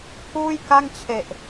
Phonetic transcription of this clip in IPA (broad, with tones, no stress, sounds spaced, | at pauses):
pʰ uː˥˩ j k a˥˩ ŋ t͡ɕʰ e˨˩ ʔ